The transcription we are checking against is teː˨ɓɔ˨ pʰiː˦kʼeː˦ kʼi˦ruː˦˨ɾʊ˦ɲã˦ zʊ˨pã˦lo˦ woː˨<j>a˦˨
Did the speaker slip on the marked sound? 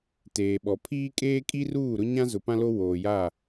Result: no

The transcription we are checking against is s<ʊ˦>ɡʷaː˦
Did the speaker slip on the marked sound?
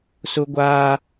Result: no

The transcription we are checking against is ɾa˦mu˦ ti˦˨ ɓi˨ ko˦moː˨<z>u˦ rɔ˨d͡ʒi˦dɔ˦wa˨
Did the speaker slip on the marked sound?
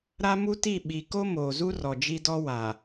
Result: no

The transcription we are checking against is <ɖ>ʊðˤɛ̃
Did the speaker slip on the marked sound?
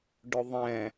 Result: no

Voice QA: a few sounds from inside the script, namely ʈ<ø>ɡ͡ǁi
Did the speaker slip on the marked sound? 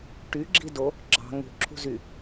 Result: yes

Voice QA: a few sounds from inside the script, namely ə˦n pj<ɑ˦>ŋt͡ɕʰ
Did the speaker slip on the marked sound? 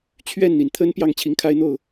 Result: yes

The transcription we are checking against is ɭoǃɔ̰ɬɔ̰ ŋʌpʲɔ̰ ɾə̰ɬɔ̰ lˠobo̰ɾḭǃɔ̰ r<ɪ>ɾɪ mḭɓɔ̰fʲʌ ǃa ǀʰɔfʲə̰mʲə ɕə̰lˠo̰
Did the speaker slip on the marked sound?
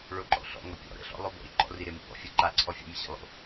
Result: yes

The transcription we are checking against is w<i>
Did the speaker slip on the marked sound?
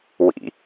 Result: yes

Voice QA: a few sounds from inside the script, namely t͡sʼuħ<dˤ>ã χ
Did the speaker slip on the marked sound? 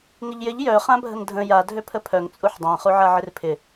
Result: no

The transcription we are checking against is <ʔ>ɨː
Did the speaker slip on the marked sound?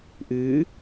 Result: no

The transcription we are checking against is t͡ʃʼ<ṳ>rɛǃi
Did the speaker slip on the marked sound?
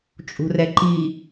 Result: no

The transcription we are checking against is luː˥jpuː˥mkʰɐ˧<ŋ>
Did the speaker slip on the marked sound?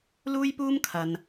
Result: yes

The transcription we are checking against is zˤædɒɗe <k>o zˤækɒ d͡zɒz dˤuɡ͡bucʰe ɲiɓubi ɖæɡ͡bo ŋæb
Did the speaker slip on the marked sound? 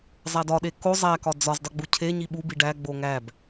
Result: no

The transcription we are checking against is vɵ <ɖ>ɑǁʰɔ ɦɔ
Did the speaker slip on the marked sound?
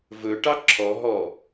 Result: yes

